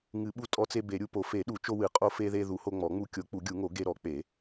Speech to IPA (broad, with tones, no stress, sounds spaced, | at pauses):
ŋ ɨ˨˩˦ ɓ u˧ tʼ ɔ˧ t͡s e˧ b e˨˩˦ ɾʲ u˧ p o˨˩˦ f e˨˩˦ ɗ u˨˩˦ t͡ʃ o˧ w ɨ˨˩˦ qʼ o˧ f e˧ ð e˧ ð u˨˩˦ h o˧ ŋ͡m ɔ˨˩˦ ŋ͡m u˧ kʲ o˨˩˦ k͡p u˨˩˦ ɡʲ u˨˩˦ ŋ o˨˩˦ ɡ e˧ ɾ ɔ˨˩˦ k͡p e˨˩˦